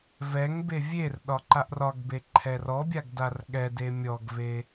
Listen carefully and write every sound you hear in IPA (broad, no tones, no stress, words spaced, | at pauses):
vɛŋ bevʲerɗɒ ǃaʔrɒɡbe ǃʰɛrɔbʲaɡ darɠɛde mʲɔɡve